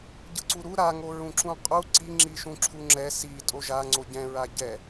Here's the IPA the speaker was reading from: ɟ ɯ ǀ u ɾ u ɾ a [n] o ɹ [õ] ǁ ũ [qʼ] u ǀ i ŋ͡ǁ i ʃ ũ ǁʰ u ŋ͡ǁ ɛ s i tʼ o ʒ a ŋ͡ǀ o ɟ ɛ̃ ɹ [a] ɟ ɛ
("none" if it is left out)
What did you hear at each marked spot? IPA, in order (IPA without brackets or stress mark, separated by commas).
ŋ, ũ, qʼ, a